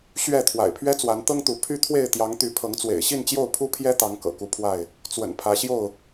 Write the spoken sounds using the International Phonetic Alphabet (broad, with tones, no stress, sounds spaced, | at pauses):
ɕ ɥ ɛ˥˨ t̪ʰ w a̰˨˩ ɪ̯ pʰ ɥ ɛ˦ t͡s w a˨˦ n t̪ ɤ˦ ŋ t̪ u˨˦ pʰ y˦ t̪ʰ w e˥˨ ɪ̯ t̪ j ɑ˨˦ ŋ t̪ y˨˦ pʰ ɤ˨˦ ŋ t͡s w ḛ˨˩ ɪ̯ ɕ i˥˨ n t͡ɕ j o˥˨ ʊ̯ pʰ u˦ pʰ j ɛ˦ t̪ ɑ˨˦ ŋ k ɤ̰˨˩ k u˨˦ pʰ w a˥˨ ɪ̯ | t͡s w ə̰˨˩ n pʰ ä˨˦ ɕ j o˥˨ ʊ̯